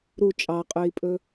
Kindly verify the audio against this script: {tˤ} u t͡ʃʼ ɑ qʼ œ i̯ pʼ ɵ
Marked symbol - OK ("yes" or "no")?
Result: no